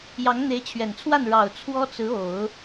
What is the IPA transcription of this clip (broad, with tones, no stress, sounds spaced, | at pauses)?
j ɑ˧˥ ŋ n̪ e˧˥ ɪ̯ t͡ɕʰ ɥ ɛ˨˩ n t͡sʰ w a˥˩ n ɻ ɑ˨˩ ʊ̯ t͡sʰ w ɔ˥ t͡s ɹ̩˧˥ o˨˩˦ ʊ̯